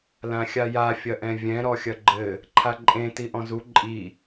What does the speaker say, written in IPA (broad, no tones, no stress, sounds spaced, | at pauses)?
l ã xʲ a j a fʲ ɐ ʔ ɛ̃ vʲ ɛ̃ ɾ ɔ xʲ ɐ ɡ͡ǃ ɘ | ǃʰ a ǃʼ ẽ t i ʔ ɔ̃ z u ǃʼ i